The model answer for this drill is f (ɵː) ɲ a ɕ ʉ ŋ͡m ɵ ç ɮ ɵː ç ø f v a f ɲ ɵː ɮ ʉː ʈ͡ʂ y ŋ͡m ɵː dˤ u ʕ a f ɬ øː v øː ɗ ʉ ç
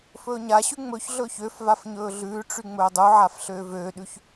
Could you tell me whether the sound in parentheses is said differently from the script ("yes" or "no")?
no